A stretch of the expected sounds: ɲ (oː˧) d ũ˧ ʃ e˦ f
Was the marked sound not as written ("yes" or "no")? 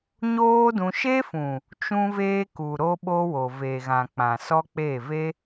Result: yes